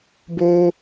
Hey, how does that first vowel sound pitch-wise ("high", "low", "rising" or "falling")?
high